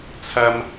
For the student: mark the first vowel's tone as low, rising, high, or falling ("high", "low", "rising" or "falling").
high